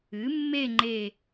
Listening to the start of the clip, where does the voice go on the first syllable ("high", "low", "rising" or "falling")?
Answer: rising